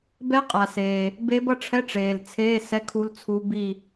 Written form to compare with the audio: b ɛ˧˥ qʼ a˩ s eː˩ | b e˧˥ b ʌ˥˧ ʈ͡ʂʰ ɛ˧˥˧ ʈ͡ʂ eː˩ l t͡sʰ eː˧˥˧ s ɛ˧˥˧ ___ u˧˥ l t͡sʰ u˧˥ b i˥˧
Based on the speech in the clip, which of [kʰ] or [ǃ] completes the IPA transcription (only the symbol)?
kʰ